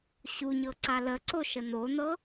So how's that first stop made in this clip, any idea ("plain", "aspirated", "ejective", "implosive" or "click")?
click